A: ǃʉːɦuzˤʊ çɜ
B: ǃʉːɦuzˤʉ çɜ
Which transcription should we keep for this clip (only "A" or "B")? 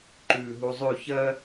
B